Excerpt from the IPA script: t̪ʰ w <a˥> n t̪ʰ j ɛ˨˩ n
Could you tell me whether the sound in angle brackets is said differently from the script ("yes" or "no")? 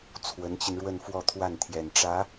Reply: yes